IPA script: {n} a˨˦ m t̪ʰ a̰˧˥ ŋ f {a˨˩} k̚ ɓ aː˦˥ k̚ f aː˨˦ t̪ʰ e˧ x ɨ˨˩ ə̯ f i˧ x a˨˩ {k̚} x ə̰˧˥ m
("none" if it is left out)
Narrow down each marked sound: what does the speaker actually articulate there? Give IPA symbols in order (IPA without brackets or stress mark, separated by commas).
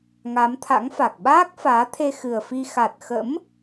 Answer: ŋ, a˨˩, t̚